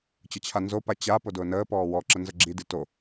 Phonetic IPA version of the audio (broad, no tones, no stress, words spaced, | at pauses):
t͡ɕət͡ɕʰanzopa t͡ɕa podʊːnəːpɔː wɔǁə nzəɡ͡ǁidi to